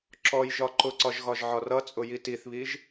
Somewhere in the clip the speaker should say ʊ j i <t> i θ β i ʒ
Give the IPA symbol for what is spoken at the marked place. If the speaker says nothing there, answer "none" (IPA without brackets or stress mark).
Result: t